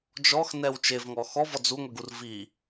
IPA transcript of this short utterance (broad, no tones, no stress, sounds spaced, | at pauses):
d͡ʒ ɔ x n ɛ w t͡ʃ e v ŋ ɔ x ɔ v ɔ d͡z u ŋʷ i ɡ u r v i